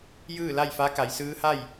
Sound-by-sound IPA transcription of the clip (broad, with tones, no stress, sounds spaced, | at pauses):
j ɯː˥˨ l a˥˨ j f a˧˥ k a˩˧ j s ɯː˧˥ h a˥˨ j